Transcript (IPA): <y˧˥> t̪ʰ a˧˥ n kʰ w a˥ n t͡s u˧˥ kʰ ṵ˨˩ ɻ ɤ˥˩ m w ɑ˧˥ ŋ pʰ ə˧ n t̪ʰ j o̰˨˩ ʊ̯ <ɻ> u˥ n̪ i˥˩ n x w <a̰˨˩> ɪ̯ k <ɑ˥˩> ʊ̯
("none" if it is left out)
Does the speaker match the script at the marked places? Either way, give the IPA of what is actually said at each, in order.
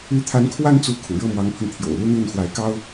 y˧˥, l, a˧˥, ɑ˥

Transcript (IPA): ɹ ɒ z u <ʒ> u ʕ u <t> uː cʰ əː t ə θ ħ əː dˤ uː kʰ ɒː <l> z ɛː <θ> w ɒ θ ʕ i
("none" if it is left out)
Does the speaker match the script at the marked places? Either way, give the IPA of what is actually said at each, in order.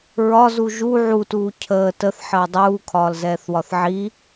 ʒ, t, l, θ

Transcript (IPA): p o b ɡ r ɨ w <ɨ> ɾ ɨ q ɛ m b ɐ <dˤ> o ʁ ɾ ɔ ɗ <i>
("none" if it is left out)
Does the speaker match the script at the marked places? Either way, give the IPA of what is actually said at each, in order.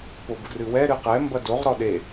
ɛ, d, e

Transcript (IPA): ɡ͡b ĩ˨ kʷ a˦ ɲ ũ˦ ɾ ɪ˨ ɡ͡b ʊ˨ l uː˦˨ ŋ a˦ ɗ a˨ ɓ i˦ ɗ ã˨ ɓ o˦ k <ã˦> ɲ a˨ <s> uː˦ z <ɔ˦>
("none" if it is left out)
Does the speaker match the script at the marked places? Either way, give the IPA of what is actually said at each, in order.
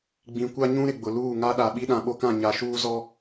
ã˦˨, ʃ, ɔ˦

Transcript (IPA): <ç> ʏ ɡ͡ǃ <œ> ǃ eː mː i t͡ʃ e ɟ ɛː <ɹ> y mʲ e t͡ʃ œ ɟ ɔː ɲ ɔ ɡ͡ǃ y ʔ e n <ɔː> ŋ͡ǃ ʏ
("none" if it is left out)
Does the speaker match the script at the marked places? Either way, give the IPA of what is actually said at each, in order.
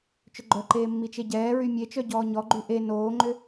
t͡ʃ, œ, ɹ, oː

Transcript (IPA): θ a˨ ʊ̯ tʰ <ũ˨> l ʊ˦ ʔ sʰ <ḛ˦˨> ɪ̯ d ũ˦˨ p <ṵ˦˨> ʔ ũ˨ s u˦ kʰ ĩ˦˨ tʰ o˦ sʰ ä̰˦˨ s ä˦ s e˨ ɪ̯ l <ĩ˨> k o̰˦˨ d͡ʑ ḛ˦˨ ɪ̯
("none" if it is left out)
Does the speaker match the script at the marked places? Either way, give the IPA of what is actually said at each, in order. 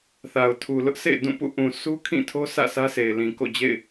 u˨, ḛ˦˨, ṵ˦˨, ĩ˨

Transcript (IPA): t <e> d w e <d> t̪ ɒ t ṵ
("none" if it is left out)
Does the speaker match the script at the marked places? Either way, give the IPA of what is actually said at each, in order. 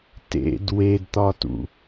ḛ, d

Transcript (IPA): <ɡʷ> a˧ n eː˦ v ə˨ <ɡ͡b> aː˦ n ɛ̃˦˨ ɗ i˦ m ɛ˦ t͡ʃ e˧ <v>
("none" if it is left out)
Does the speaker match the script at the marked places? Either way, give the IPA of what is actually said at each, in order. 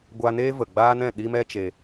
ɡʷ, ɡ͡b, none

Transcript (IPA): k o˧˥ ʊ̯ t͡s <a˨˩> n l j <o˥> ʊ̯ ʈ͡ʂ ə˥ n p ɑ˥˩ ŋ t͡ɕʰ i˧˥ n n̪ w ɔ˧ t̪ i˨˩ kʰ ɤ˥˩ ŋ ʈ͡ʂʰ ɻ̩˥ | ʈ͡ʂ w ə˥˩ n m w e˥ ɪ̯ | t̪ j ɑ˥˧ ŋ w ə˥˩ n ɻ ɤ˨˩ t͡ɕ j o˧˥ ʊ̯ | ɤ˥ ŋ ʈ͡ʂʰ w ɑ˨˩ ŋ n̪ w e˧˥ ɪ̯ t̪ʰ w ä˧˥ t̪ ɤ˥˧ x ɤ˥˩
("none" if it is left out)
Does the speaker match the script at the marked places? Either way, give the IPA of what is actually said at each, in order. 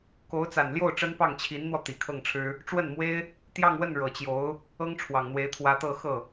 a˨˩, o˥˩

